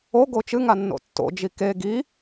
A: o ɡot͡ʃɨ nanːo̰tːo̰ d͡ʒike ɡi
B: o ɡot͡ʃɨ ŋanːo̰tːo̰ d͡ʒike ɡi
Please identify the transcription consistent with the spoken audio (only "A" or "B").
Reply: B